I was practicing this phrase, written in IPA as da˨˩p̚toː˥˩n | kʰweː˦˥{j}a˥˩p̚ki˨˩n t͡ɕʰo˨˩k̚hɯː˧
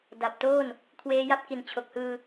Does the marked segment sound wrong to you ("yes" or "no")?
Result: no